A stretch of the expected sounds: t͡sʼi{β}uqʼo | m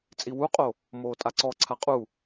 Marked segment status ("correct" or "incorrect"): incorrect